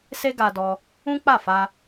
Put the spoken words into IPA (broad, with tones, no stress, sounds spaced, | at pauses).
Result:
s e˦ ɡ a˧ d ɔ˧ | ũ˦ k͡p a˦˨ f a˧